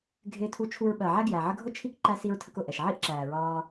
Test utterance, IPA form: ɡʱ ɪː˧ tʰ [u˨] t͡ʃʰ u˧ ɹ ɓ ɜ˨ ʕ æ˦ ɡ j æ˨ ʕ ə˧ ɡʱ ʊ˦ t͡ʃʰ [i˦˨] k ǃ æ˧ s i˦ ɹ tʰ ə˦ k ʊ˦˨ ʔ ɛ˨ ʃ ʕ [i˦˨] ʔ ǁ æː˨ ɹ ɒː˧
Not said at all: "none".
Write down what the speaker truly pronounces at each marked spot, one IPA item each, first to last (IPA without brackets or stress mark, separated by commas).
u˧, i˦˨, i˦˨